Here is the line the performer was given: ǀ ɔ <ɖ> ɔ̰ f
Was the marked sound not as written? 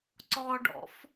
no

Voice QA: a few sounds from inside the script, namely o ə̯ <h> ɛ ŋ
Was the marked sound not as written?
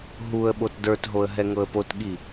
yes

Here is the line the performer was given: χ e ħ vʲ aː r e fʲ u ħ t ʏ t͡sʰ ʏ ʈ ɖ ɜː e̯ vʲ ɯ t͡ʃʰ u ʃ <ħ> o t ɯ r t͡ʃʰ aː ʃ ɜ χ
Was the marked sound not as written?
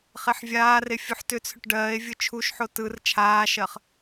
no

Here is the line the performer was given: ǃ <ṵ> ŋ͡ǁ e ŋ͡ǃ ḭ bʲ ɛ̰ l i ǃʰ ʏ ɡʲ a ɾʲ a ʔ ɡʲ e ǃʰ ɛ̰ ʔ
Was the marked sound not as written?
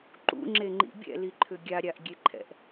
no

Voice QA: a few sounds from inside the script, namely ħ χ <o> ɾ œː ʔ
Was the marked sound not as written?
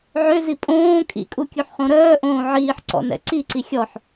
yes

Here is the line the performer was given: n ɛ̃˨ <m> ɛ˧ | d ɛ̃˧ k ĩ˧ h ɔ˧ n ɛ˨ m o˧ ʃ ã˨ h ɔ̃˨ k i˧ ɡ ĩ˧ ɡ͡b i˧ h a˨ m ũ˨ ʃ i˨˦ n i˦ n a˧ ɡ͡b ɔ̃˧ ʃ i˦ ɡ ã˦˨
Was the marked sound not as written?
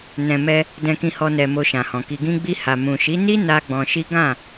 no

